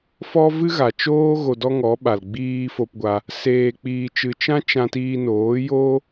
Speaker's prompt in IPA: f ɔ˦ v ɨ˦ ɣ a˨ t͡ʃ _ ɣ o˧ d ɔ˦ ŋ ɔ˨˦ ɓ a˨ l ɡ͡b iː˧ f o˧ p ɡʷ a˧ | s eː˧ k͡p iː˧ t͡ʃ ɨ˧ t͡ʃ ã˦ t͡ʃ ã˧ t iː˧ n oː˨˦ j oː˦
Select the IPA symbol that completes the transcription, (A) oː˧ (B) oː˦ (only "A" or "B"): B